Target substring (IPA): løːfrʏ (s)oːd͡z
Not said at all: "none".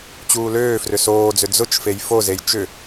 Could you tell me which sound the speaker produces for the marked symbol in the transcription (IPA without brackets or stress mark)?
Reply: s